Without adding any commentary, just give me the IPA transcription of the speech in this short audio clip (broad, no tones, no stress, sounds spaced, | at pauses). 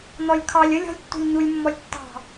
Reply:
n̪ ɔ lʲ kʰ ɑ lʲ ə lʲ ɔ̤ lʲ tː ṳ lʲ ɲ u lʲ mː ɔ lʲ tː ɑ̤